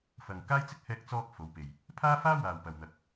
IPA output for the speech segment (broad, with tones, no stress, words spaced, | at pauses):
fɐ˨ŋkaː˥jt͡sɪ˥k̚ hɛː˧k̚t͡sɔː˧k̚ fo˨˧wpe˨j | pʰaː˥faː˥ waː˨wpɐ˨w n̪ɐ˨˥k̚